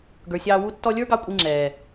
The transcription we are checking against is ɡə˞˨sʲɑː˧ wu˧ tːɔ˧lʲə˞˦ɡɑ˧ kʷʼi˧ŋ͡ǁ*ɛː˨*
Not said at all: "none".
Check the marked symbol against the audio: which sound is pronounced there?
ɛː˨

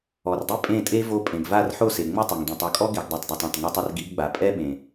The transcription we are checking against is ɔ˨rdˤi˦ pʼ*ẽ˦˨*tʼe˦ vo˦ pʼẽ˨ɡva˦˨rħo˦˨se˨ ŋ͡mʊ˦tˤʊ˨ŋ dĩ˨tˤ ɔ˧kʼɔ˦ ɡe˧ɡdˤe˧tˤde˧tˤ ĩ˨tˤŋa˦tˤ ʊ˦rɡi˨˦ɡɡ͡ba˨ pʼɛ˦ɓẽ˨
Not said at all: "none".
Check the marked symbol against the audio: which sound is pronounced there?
ẽ˦˨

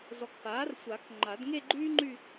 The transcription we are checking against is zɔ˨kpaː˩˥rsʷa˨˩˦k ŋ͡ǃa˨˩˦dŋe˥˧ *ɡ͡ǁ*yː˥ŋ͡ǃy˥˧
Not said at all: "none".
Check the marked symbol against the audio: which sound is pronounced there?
ɡ͡ǃ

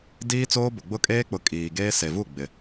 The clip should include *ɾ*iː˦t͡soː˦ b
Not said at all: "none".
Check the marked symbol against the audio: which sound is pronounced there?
d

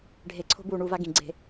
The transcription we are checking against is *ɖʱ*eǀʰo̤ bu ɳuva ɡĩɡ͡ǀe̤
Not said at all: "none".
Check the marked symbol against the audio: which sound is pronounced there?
ɖʱ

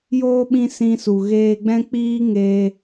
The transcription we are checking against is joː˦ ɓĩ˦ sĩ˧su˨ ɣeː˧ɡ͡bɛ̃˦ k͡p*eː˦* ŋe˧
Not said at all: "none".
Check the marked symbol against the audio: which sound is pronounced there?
iː˦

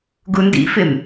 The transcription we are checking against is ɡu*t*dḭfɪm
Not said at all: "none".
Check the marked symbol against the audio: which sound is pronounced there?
n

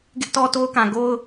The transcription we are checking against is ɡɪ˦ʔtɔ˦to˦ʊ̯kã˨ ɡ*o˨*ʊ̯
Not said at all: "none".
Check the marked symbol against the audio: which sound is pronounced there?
o˦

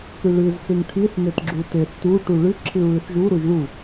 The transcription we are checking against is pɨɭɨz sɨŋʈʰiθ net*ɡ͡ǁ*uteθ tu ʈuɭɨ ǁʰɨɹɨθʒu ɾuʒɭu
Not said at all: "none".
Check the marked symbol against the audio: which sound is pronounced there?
ɡ͡ǁ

